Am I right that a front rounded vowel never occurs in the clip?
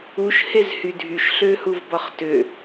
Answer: no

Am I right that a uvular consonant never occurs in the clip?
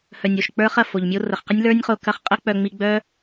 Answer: no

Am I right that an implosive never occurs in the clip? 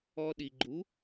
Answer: no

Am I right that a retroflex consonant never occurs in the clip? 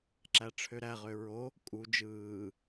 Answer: no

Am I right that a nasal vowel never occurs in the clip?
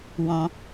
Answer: no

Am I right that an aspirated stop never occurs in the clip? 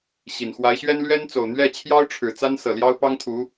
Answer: no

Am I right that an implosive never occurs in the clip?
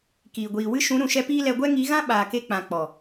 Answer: no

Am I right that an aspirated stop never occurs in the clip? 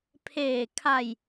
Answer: no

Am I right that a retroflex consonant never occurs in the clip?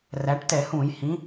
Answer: no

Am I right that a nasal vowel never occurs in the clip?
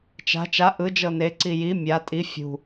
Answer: yes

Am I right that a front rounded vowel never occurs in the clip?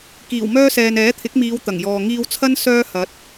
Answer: no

